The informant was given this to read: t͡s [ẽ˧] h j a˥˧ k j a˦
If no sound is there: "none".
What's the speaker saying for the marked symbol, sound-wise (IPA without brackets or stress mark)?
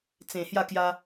ẽ˨˩